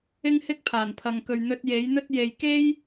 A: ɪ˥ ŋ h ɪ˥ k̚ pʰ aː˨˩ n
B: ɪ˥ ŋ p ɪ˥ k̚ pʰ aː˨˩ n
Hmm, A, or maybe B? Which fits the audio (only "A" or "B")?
A